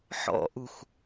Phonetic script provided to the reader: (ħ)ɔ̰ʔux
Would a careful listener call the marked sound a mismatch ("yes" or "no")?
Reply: no